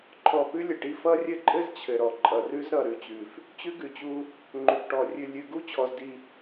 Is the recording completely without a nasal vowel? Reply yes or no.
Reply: yes